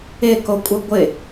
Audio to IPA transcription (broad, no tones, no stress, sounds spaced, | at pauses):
ɪ k o kʷʼ ɯ ɡʷ ɪ